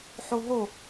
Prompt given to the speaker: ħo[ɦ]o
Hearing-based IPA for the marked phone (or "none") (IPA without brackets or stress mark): ɦ